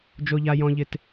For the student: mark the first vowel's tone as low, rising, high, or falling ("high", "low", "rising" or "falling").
high